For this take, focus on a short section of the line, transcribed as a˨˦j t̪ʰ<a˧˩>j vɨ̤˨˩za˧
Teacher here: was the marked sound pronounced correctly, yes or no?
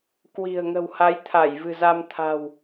yes